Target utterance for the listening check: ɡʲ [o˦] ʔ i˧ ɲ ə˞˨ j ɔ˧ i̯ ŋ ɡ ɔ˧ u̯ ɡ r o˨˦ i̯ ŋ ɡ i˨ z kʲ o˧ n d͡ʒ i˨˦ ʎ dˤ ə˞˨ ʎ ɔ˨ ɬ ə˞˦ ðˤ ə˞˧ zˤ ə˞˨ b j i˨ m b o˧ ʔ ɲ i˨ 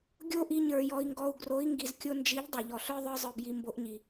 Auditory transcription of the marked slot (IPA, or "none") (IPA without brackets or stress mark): o˦